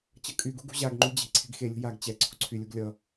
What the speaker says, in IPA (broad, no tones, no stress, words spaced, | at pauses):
t͡ɕʌkʼyɡṳ ɡṳʑaɡŋ͡ǃy d͡ʑe̤ ǀʰe̤ɡxelʲṳ jaɡ t͡ɕɛ ǀʰṳǀʰylʲuɡ lʲʌ